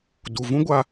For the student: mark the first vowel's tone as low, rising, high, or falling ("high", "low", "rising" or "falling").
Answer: low